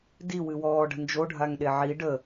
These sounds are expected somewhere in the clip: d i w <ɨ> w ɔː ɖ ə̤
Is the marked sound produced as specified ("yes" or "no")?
yes